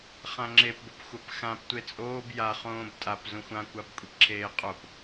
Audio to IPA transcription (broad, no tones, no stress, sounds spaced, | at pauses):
χ ã ŋ͡ǁ e p b o p xʷ a p x ã p tʷ e t͡sʼ oː b j a χ õː b tʼ a p z ũ xʷ ã kʷ a b kʷʼ e p ǁʰ eː qʼ o p